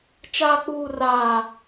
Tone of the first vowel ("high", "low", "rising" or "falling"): high